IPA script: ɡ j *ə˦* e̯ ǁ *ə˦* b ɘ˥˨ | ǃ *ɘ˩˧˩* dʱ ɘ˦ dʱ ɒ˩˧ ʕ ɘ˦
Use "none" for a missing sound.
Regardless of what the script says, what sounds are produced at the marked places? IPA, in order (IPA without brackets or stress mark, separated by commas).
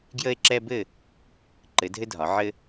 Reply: ə˦, ɛ˦, ɘ˩˧